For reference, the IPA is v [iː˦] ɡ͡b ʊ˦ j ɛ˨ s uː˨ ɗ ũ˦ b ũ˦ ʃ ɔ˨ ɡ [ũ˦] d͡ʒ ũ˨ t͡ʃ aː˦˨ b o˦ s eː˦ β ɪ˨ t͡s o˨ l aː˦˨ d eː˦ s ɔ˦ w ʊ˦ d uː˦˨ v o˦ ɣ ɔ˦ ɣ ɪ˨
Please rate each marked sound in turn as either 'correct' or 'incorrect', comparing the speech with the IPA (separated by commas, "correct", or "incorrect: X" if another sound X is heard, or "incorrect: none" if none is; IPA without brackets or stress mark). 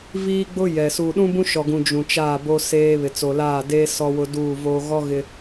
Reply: correct, incorrect: ũ˨